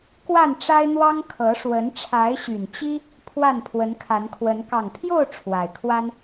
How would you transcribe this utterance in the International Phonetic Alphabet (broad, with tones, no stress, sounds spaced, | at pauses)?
k w a˥˨ n ʈ͡ʂ a˦ ɪ̯ n̪ w ɑ˦ ŋ kʰ ɤ˨˦ ʂ w ə˨˦ n ʈ͡ʂʰ a˨˦ ɪ̯ ɕ y˨˩ n t͡ɕ i˦ | pʰ w a˥˨ n pʰ w ə˨˦ n kʰ a˨˦ n kʰ w ə˨˦ n k ɑ˨˩ ŋ pʰ j o˥˨ ʊ̯ ʈ͡ʂʰ w a˨˩ ɪ̯ kʰ w a˦ n